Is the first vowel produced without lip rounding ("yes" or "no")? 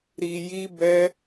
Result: yes